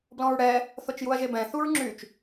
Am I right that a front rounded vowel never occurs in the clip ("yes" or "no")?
no